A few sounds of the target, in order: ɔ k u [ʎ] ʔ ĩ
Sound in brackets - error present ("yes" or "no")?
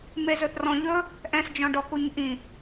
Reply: yes